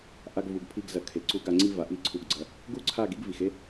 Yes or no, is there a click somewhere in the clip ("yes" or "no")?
yes